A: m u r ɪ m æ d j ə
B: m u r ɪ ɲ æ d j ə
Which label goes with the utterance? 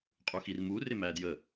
A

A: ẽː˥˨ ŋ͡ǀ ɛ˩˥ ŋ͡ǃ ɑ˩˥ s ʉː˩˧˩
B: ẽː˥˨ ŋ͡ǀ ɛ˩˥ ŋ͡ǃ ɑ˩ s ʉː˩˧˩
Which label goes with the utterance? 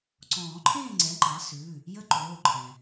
A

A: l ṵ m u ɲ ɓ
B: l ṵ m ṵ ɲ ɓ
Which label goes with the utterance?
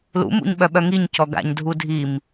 B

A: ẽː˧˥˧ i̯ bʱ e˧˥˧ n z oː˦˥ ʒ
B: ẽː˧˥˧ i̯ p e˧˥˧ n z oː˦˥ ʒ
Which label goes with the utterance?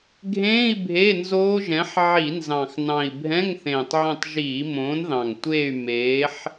A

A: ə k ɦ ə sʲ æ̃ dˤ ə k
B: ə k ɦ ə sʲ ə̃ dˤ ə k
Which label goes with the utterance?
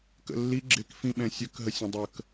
B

